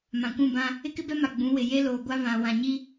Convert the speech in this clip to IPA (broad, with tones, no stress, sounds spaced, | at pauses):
m ã˨ kʷ ũ˦˨ b ã˦ | ɪ˦ k ɪ˦ b ɛ˦ m a˨ ɡ͡b ũ˨˦ w ɪ˨ j e˦ l oː˨ ɡʷ a˦ β ã˨ w ã˨ ɲ i˦